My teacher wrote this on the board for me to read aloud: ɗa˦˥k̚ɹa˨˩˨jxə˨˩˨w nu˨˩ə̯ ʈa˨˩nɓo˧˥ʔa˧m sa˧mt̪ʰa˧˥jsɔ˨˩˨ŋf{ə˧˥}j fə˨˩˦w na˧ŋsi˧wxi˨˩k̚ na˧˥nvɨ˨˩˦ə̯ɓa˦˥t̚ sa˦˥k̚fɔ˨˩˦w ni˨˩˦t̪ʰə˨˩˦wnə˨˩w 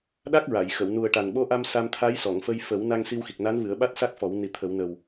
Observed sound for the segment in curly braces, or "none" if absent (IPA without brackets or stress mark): ə˧